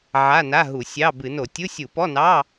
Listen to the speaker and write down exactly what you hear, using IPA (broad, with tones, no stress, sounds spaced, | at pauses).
ʕ a˧˥˧ n a˧˥˧ ɦ u˧˩˧ sʲ ɑ˧˥˧ b ɨ˧˩˧ n o˧˩˧ tʲ u˧˥˧ sʲ u˧˩˧ p ɔ˧˥˧ n ɑ˧˥˧